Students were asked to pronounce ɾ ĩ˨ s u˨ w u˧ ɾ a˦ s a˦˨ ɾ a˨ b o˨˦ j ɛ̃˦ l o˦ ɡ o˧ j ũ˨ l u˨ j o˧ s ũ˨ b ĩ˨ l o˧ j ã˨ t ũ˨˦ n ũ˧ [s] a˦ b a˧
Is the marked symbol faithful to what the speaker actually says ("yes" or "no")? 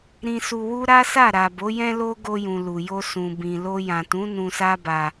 yes